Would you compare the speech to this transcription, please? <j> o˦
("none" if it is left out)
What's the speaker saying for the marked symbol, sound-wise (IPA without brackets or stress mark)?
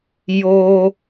j